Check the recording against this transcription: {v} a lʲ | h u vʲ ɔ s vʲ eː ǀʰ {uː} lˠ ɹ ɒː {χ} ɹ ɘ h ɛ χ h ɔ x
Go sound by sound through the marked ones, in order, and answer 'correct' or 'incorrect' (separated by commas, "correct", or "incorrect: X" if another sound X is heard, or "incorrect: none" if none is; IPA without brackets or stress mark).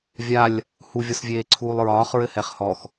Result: incorrect: vʲ, correct, correct